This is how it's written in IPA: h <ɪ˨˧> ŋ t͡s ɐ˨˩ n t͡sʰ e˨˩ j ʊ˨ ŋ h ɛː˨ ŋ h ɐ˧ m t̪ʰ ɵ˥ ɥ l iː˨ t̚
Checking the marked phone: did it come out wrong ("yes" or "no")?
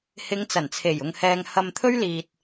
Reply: no